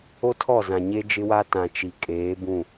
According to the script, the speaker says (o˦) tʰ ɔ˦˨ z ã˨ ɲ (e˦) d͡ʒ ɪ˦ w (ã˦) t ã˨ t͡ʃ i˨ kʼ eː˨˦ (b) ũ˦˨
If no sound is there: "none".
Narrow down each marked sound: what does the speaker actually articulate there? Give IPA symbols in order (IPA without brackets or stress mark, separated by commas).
o˦, e˦, a˦, b